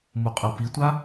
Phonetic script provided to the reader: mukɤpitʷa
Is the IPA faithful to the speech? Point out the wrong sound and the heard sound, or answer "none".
k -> qʼ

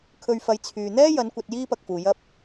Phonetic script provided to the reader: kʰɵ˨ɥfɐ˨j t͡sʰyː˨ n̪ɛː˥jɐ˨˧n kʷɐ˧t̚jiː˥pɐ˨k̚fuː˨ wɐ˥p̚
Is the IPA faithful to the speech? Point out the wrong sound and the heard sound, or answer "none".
w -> j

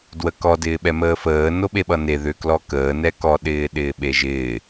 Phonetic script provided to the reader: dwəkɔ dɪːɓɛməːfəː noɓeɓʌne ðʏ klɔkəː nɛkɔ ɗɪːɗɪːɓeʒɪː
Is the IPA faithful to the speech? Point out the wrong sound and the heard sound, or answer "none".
none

